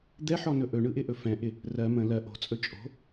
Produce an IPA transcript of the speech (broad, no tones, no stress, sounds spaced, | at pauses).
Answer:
d̪ ɛ ħ ɔ n ɵ ʔ ɵ ɳ ɯ ʔ ɪ ʔ ɵ f ɛ̃ ʔ ɪ | r ɜ m ə̃ l ɜ ʔ o̤ t͡sʼ ɵ t͡ʃʼ o̤